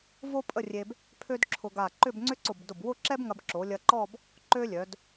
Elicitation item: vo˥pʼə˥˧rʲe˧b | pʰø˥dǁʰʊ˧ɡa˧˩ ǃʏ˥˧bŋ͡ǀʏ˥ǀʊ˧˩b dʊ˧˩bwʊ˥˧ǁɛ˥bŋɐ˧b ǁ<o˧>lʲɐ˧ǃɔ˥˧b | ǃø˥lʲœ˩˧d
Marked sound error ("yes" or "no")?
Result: yes